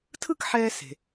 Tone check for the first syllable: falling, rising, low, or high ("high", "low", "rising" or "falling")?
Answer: falling